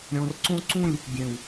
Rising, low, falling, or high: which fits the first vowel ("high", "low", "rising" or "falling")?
low